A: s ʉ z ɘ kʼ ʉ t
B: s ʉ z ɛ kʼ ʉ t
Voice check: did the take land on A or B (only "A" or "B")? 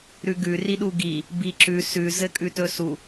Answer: A